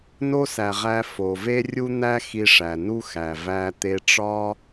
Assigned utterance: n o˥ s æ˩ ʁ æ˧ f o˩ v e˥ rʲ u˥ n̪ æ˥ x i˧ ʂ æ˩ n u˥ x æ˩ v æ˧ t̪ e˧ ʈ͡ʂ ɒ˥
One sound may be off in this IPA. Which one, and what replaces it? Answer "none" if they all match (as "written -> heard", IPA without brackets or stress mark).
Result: none